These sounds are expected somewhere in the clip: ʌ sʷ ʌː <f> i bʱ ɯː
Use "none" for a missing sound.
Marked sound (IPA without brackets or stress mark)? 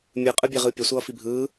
f